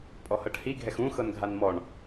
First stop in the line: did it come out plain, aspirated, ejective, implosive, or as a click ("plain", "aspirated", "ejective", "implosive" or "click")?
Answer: ejective